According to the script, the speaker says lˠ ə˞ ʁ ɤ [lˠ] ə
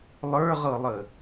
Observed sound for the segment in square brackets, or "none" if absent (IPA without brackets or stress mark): lˠ